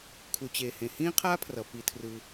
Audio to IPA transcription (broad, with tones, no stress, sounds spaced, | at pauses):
kʰ u˩ t͡ɕ eː˩ h ẽ˩ h ĩː˦ qʰ aː˦ pʰ r ʌ˩ p i˩ tʰ r ɯ˩